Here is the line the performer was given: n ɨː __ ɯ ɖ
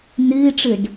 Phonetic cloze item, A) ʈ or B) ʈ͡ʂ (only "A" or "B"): B